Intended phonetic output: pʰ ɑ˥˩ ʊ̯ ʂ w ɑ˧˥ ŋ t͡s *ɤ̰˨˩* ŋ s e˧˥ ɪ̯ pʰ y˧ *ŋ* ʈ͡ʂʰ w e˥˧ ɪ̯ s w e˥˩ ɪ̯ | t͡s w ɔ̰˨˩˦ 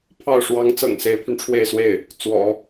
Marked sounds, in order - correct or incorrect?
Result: correct, incorrect: n

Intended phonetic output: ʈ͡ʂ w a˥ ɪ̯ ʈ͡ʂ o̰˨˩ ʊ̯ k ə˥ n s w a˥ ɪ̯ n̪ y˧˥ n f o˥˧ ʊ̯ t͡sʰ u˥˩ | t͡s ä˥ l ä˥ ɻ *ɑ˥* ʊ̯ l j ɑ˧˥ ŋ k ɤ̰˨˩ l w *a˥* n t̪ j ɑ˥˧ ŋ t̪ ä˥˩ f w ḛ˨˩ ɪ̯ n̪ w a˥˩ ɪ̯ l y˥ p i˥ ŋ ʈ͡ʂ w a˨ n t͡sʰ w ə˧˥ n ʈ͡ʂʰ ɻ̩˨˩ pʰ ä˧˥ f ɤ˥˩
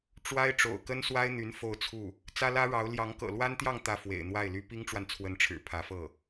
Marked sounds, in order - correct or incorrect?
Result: incorrect: ɑ˧˥, correct

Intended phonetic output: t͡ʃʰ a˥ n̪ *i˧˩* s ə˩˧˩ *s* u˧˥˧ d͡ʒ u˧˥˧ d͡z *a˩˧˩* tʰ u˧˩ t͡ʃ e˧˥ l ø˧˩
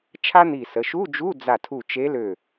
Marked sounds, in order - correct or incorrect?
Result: correct, incorrect: ʃ, incorrect: a˧˩

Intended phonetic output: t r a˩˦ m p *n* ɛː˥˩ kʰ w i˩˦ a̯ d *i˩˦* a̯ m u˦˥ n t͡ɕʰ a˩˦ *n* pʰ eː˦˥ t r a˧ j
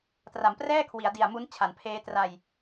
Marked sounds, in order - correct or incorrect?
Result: incorrect: r, incorrect: i˨˩, correct

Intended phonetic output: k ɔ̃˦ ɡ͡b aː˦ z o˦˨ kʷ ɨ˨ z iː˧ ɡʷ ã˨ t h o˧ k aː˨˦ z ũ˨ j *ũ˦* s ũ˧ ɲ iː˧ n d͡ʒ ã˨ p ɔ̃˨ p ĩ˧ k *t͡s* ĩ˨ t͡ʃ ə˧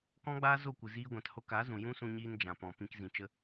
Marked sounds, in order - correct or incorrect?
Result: correct, incorrect: z

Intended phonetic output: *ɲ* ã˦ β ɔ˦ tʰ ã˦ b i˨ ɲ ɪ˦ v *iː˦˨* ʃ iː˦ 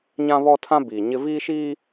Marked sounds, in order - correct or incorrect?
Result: correct, incorrect: iː˦

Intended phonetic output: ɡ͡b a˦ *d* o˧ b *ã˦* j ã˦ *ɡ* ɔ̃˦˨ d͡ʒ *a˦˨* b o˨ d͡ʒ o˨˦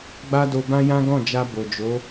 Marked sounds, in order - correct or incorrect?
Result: correct, correct, correct, incorrect: a˧

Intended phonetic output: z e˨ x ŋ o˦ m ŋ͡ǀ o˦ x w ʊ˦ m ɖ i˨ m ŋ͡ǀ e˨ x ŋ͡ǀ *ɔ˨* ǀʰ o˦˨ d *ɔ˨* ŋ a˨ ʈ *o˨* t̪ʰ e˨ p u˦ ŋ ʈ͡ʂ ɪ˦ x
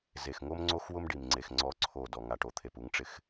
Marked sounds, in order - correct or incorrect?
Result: incorrect: ɔ˦, correct, correct

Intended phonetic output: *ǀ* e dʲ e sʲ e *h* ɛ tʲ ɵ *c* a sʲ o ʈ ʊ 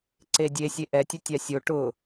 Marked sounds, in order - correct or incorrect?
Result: correct, incorrect: ʔ, incorrect: tʲ

